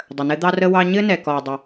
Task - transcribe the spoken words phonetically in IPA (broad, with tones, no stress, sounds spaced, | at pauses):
dˤ ə˨ n ɘ˦ d̪ ɑ˦ r ə˦ w ɑ˦ ɲ ɘ˦ n ɛ˨ k ɔ˨ dˤ ə˦